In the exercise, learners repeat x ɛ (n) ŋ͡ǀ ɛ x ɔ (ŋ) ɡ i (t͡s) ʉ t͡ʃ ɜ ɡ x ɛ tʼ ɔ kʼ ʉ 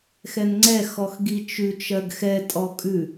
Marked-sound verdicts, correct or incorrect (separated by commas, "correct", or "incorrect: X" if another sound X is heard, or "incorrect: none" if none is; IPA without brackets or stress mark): correct, incorrect: x, incorrect: t͡ʃ